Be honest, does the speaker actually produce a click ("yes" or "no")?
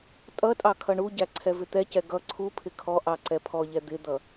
yes